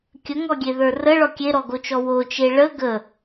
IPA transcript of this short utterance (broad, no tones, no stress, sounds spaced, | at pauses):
kʲ ə ŋ ɔ ɡʲ e ð ə˞ r ə ɭ ɔ kʲ e ɾ ɔ ɡ o t͡ʃ ɔ w o t͡ʃ e ɭ ə ɡ ə